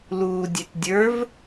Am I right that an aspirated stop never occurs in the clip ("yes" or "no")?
yes